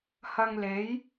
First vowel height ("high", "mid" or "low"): low